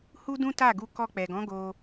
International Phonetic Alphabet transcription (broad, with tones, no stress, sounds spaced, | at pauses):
h u˦ d ũ˦ t a˦˨ ɡ u˧ k ɔ˧ k͡p ɛ˨ ɡ ɔ̃˨˦ ɡ o˧